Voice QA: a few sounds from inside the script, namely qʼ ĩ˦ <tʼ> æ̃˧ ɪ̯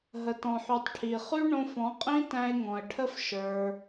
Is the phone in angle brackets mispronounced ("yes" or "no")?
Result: yes